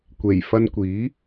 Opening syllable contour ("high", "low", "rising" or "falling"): low